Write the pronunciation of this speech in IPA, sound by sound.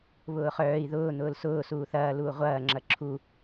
β ʊː χ œː i̯ ð ʊː n̪ ʊː l s ʊː s uː θ ɐː l uː ʁʷ ɐː ŋ͡ǁ ɐ ǁʰ u

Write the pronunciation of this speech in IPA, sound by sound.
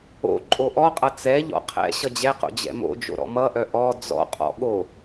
o̰ ǃʼ o ʔ ɔ qʼ ʌ t͡s ɛ ʎ ɔ̰ qʰ ɛ̰ ɕ ʌ d͡ʑ ɛ q o̰ d͡ʑ ɛ̰ m o̰ d͡ʒ o̰ ɾ ɔ̰ m ʌ ʔ œ ʔ ɔ d͡z ɔ̰ qʼ ɔ̰ ɠ o

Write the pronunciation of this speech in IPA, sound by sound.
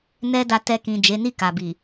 n ɛ˦ d a˧ t ɛ˧ k ĩ˨ d͡ʒ e˨˦ n i˦˨ k a˨ b i˨

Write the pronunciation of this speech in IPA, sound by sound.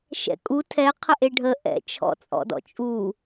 ʃ ɛ̰ kʼ u tʰ ɛ qʰ ə ʔ e ɖʱ ə ʔ ɛ̰ t͡ʃʰ ɔ̰ t͡sʼ ɔ̰ d ɔ̰ t͡ʃʼ u

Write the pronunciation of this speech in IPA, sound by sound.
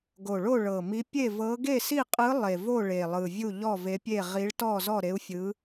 ɡ o˨˩ ɭ o˥˨ ɭ ɤ˨˩ m i˧˥ pʲ e˥˨ v ɤ˧˥ ɡ e˥˨ s i˥˨ qʼ ɯ˧˥ lˠ e˨˩ v o˥˨ ɭ e˨˩ lˠ ɯ˨˩ vʲ u˥˨ ʎ ɔ˥˨ v e˧˥ pʲ e˥˨ ʁ i˧˥ ɭ t ɔ˥˨ z ɔ˥˨ ɾ e˧˥ u̯ fʲ ɯ˧˥

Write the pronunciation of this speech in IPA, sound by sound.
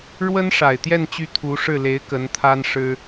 ɻ w ə˥ n ʂ a˨˩ ɪ̯ t̪ j ɛ˥˧ n t͡ɕ y˥˩ t̪ʰ u˧˥ ʂ ɻ̩˥˩ l e˧˥ ɪ̯ k ə˧˥ n t̪ʰ a˥ n ʂ ɻ̩˥

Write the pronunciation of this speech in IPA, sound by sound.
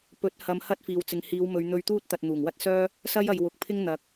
p ɵ˨˥ t̚ h ɐ˧ m h ɐ˥ t̚ f iː˨ w t͡s ɪ˨ ŋ h iː˨˧ w m ɵ˨˧ ɥ n̪ ɵ˧ ɥ t̪ uː˥ t̚ t̪ ɐ˨ t̚ n̪ uː˨˩ ŋ w ɐ˥ t̚ s œː˥ | s ɐ˥ j ɐ˨ j w ʊ˨ k̚ pʰ ɪ˥ ŋ n̪ ɐ˨˥ k̚

